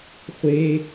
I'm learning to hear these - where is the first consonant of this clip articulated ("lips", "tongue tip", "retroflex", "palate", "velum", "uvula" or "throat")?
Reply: uvula